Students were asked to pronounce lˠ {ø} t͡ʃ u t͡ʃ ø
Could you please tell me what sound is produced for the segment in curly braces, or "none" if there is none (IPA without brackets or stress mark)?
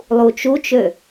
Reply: u